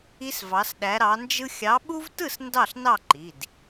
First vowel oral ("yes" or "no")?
yes